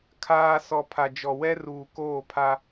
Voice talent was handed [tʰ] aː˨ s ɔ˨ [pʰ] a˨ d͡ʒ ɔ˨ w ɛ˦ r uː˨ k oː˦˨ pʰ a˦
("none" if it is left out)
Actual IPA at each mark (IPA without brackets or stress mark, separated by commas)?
kʰ, pʰ